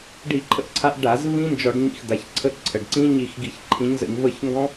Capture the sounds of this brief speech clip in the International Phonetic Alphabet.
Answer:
ɖi˧˩˧ǃʰə̰˦˨ʔǀʰa˨˦ʔ ɖa˧˩˧z vĩ˦˥nd͡ʒɔ˧˩˧ɖ ɲḭ˦˨xd̪a˩˧˩çǀʰə˦˥ ǀʰə˩˧˩ɖǀĩ˦˥ɲi˦˨x ɡi˧˩˧ç ǃʰĩ˨˦ɲzə̰˧˩˧ɲ və˦˨ç ŋɡɔ̃˦˥

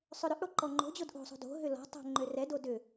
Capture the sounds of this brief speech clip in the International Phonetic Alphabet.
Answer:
sˤʏɾʏʔɽo ǃɔŋ͡ǃo̤d͡ʑod ʔo̤sˤo̤ do̤ ɦʏlɔ̤tˤo̤ ŋ͡ǃørɛdo dʏ

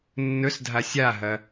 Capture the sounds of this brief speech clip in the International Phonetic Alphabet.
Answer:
nːɵsdʱa sʲaɦɐ

